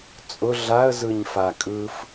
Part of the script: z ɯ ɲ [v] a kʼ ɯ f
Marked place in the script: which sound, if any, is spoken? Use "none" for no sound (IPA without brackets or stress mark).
f